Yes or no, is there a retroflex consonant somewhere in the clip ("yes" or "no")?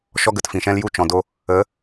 no